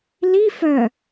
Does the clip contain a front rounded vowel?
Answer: yes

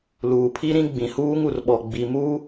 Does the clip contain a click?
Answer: no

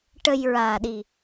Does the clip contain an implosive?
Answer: yes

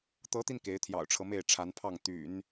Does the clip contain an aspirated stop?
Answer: yes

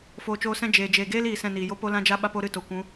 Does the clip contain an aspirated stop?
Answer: no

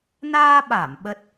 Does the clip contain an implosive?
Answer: yes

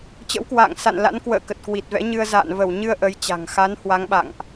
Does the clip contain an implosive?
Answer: yes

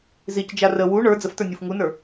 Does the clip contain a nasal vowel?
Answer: no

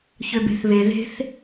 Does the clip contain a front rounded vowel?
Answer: yes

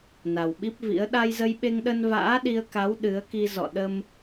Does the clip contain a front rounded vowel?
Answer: no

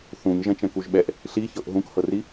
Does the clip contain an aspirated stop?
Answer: no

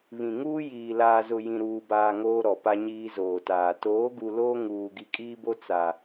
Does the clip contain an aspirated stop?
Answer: no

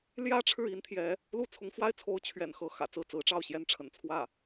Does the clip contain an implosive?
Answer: no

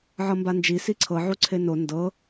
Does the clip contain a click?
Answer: yes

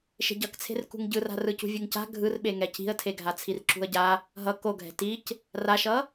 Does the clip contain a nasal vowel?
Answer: no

